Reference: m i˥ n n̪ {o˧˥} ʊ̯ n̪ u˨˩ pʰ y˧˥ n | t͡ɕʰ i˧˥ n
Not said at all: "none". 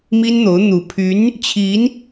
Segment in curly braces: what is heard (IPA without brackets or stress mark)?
o˧˥